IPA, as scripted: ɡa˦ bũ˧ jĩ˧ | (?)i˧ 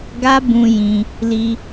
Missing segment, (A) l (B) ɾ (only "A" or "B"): A